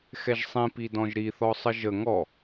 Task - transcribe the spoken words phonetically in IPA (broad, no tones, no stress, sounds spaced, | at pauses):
x ɛ ʒ sˤ ĩ p i d ɔ̃ ʒ ɾ i θ ɔ sˤ ə ʒ ə ŋ ɔ